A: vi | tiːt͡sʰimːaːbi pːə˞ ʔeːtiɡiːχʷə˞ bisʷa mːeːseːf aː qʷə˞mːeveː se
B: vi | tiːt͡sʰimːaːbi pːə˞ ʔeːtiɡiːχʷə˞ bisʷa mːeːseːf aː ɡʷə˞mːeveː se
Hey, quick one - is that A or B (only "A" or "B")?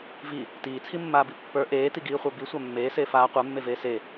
A